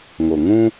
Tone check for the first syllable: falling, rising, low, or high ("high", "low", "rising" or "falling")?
low